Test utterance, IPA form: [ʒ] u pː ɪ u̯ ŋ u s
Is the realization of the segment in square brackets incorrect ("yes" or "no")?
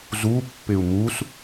yes